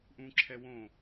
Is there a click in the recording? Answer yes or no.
yes